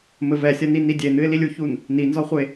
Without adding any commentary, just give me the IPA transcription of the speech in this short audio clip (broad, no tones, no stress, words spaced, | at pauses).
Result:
mɘvɛsʲɐni nidʲenɨɪ̯lilʲ uçun | ninzɔχʷe